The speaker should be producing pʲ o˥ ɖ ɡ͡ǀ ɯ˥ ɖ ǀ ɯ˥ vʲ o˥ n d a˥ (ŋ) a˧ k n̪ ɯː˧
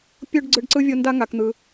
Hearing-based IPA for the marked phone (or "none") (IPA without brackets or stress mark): ŋ